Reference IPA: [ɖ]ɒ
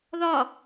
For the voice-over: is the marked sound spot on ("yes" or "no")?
no